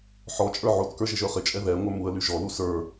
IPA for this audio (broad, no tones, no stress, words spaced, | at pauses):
ħɔt͡ʃʼə˞ ʕotkə˞ ʒɪʒə˞χɪt͡ʃʼɛ ðɛŋʷə˞ muə̯ly ʒɔlu sə˞